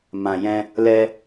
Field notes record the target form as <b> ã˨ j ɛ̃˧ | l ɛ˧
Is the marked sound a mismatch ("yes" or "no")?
yes